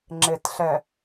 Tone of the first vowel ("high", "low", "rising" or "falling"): low